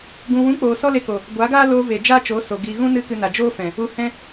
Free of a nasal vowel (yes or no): no